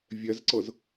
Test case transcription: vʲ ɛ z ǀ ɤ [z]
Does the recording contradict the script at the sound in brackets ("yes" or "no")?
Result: no